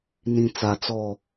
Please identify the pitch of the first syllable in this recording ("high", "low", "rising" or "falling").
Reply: low